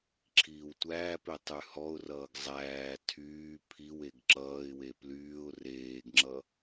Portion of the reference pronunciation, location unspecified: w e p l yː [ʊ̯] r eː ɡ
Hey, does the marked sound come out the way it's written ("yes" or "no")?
yes